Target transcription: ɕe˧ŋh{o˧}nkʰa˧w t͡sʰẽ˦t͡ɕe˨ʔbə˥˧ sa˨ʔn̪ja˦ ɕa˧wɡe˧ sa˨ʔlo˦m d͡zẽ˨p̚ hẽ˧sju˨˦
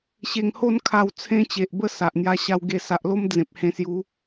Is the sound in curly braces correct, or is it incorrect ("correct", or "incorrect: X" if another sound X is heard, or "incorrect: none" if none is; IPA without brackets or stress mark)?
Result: incorrect: o˥˧